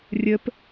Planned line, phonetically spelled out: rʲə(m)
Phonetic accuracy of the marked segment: incorrect: p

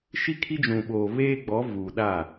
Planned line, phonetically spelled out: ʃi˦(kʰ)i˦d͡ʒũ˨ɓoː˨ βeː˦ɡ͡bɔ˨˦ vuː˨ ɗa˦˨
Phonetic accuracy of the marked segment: correct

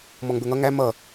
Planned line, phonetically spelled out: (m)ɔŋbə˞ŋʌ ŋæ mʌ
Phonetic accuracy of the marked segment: correct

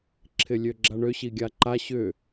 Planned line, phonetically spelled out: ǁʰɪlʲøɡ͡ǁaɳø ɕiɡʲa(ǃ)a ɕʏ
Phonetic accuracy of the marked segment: correct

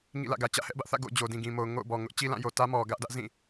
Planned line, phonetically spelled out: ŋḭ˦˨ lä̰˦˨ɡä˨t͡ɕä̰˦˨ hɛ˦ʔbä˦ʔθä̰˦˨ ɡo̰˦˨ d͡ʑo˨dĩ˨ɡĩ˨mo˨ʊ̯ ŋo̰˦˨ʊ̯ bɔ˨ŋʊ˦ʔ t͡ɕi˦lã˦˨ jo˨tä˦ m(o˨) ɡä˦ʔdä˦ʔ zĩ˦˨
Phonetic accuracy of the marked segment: incorrect: ɔ˨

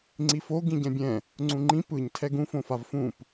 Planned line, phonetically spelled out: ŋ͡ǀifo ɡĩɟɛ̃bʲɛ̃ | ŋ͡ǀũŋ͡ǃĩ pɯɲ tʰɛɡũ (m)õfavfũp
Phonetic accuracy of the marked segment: incorrect: f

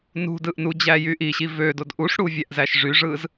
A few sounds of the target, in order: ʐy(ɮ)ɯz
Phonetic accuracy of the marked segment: incorrect: ʐ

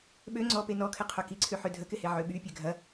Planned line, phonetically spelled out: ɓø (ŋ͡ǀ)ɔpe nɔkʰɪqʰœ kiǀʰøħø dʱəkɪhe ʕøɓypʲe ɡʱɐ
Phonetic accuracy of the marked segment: correct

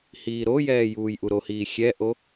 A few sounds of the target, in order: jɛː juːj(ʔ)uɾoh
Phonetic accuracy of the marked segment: correct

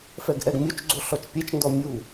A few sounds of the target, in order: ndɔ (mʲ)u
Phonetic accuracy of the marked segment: correct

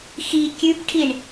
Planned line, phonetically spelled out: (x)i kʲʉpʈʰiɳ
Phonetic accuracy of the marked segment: correct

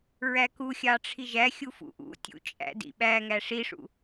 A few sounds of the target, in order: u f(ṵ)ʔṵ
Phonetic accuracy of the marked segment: correct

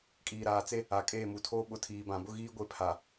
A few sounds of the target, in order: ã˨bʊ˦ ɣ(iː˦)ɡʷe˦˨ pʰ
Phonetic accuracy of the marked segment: correct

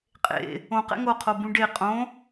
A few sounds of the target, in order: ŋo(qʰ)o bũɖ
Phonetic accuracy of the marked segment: correct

